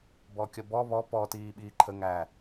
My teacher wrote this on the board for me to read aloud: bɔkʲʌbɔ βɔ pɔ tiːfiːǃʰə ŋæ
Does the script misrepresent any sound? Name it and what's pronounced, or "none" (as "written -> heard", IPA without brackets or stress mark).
f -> ɓ